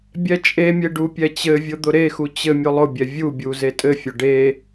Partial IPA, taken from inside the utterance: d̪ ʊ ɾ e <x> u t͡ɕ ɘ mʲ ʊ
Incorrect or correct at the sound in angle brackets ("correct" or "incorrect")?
correct